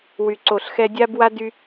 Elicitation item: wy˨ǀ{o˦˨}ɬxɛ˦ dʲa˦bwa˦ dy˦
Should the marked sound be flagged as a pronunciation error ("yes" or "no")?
yes